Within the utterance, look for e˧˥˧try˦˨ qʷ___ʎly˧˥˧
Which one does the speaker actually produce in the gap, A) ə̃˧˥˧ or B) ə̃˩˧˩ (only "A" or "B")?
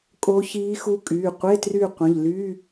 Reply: B